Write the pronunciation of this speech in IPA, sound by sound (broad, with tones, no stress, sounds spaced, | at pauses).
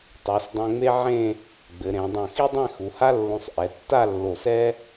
tˤ o˩˧ s dˤ ɛ̃˧ ŋ͡m e˥ ʕ ẽ˥˧ | ɡ͡b ɘ˩˧ ɾ ẽ˩˧ dˤ õ˧˩ x i˥ dˤ ɛ̃˥˧ x u˩˧ h a˥ lː õ˧ sˤ ʔ ɛ˩˧ tː a˥˧ lː o˧˩ s ɛ˥